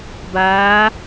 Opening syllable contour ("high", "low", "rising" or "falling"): rising